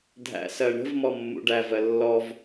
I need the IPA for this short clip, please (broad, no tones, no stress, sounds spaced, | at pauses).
dʱ æ̰ s ɜ ɳ ə̤ v m ɔ mː ṵ ɖ æ v ɜ lː ɔ v